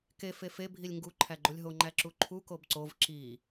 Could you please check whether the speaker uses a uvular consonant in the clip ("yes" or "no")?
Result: no